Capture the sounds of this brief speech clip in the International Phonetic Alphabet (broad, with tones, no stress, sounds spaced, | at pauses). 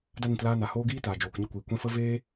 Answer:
d a˧ n ĩ˨ t l aː˧ n a˨ h oː˧ ɡ iː˧ t aː˨ d͡ʒ oː˨ k ɲ ə˦˨ kʷ iː˨ kʷ ɛ̃˧ f ə˦ v eː˦